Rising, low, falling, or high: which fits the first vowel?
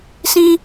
high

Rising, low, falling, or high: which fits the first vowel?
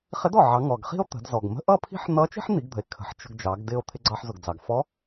rising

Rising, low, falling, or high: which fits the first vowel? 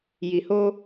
low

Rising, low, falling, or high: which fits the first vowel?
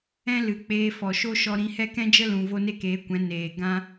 high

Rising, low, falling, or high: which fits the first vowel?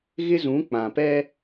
high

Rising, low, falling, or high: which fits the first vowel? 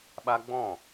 high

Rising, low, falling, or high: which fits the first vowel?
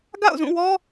falling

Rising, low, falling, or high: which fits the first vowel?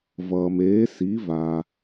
low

